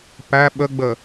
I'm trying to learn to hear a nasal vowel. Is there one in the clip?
no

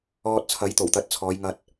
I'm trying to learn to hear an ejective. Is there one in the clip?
no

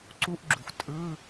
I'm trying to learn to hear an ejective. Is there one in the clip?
yes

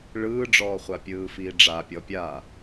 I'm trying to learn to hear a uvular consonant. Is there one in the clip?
yes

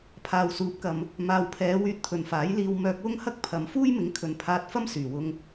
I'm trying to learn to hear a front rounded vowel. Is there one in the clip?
yes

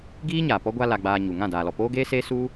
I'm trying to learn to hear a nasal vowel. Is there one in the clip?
yes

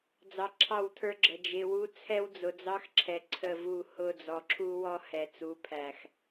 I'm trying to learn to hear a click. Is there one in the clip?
yes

